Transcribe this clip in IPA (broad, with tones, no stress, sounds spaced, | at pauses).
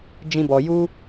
d͡ʒ ĩ˧ b ɔ˨ j u˧